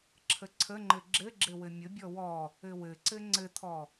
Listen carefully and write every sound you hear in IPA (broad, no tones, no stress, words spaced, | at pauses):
ǁʰəǀʰəŋ͡ǃɘ ɡ͡ǁɘɡ͡ǁɘ wɘmʲʊ bʲɔwɔ | ɘwɘǀɘ ŋ͡ǀɘt̪ʰɔ